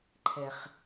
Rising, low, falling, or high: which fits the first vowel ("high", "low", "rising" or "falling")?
low